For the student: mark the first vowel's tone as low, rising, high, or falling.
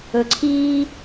low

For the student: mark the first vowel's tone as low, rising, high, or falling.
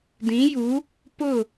rising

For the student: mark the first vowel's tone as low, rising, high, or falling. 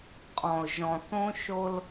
low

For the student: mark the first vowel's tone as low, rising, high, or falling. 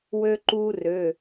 high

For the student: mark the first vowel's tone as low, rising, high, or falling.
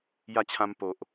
falling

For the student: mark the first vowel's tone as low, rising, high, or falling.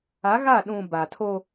rising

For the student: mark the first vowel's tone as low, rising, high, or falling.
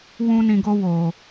high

